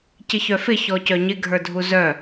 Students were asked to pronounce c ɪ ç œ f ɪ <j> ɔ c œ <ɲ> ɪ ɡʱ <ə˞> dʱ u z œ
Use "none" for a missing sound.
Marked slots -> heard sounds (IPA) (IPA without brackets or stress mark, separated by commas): ç, ɲ, ə˞